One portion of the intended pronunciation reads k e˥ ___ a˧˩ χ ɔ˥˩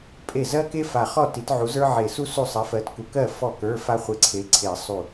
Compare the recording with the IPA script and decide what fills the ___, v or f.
f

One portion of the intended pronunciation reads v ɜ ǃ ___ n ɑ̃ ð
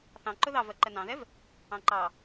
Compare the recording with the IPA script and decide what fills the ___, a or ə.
ə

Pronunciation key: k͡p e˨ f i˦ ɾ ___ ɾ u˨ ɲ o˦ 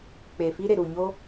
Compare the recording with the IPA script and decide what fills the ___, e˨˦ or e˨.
e˨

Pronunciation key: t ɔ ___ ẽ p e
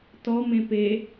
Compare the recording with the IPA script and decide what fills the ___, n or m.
m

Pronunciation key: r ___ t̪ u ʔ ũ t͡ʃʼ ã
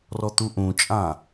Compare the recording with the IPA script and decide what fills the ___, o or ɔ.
ɔ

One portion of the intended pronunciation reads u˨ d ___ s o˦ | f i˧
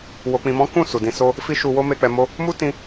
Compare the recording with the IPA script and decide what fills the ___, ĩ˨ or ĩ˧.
ĩ˧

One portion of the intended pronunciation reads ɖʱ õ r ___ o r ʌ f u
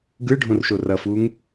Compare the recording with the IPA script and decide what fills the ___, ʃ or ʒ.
ʃ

